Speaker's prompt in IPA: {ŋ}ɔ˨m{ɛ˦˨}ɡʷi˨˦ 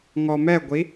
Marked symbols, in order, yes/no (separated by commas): yes, yes